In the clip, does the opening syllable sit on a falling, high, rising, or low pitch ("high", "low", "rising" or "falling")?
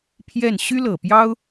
falling